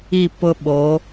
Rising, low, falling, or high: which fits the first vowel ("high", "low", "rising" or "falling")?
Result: falling